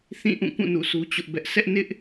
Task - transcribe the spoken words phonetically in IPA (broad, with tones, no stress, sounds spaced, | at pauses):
θ ĩ˦˨ ʔ ũ˦˨ k ũ˦˨ n ṵ˦˨ sʰ u˦ t͡ɕ ʊ˦ ʔ b ɛ˦ ʔ s ɛ˦ ʔ n ɪ˦ ʔ